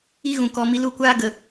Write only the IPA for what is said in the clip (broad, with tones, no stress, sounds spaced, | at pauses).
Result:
i˧ ɣ ũ˨ k ɔ˧ m i˧ l u˦˨ kʷ aː˦ ɡ ə˧